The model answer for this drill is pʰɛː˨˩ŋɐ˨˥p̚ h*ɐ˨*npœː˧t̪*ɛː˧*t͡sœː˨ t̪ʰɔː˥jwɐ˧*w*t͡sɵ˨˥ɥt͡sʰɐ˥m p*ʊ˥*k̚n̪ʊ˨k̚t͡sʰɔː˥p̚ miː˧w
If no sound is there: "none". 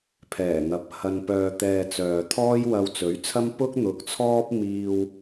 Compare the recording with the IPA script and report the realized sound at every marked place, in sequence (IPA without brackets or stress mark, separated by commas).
ɐ˧, ɛː˧, w, ʊ˥